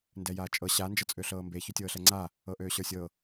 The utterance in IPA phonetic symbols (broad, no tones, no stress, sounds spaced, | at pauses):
n d ɛ j aː t͡ʃʼ ɤ ɕ a n d͡ʒ ɤ t͡sʼ ø ɬ ɤː m b e ç ø tʲ ɤː ɬ ɛ ŋ͡ǀ a | ɤ ʔ øː ɕ ə˞ sʲ ɤ